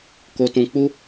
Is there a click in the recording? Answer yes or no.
no